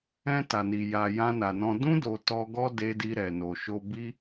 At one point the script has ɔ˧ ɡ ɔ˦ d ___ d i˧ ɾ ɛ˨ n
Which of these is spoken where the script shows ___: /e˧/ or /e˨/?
e˧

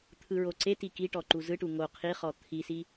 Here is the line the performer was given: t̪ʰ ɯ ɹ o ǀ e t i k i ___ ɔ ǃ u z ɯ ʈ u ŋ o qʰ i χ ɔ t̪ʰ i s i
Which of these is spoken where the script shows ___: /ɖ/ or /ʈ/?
ʈ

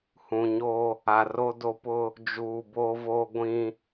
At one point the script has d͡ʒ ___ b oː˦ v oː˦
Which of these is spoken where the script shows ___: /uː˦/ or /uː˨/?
uː˨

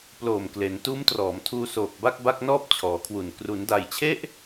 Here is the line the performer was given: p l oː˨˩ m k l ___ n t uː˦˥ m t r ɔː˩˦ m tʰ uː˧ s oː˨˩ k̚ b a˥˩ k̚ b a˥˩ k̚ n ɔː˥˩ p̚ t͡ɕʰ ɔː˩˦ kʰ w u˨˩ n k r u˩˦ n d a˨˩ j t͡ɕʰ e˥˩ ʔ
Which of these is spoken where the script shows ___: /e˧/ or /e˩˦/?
e˩˦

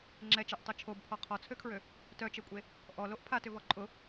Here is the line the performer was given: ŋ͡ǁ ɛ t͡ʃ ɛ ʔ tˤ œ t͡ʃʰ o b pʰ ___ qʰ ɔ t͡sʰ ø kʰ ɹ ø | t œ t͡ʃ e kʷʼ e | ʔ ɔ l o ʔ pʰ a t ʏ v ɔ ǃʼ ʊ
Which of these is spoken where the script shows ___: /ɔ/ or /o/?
ɔ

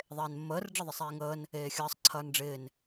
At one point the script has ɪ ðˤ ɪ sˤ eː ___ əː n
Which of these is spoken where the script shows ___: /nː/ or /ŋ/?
ŋ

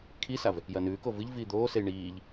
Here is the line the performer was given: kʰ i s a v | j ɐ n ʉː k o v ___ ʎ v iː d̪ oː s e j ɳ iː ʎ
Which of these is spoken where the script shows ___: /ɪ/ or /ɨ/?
ɨ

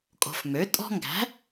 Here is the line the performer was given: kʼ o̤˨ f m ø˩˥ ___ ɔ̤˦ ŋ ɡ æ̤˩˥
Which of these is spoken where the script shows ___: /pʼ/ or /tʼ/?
tʼ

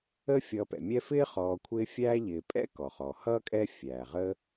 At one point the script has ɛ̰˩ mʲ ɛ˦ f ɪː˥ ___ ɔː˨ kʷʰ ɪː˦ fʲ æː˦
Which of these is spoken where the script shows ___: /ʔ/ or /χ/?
χ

